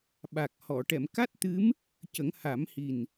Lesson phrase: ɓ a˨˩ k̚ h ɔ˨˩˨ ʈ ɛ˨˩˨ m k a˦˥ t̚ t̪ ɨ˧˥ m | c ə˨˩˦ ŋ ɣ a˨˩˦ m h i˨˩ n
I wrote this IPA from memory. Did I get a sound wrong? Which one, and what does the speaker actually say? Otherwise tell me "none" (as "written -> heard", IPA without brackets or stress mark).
ɣ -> h